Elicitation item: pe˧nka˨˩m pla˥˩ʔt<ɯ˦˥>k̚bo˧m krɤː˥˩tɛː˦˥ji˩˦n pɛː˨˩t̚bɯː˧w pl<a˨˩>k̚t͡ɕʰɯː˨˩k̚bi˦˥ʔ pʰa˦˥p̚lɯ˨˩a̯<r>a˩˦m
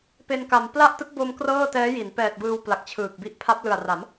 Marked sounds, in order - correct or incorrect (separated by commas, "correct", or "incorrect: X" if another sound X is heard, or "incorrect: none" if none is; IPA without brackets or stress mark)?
correct, correct, correct